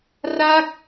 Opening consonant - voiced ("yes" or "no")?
yes